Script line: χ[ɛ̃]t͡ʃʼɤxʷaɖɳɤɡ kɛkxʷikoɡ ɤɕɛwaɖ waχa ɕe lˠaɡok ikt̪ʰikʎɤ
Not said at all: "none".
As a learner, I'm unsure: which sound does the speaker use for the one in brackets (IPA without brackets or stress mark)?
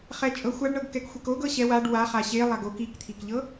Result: ɛ